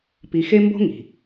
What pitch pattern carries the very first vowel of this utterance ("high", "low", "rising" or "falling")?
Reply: low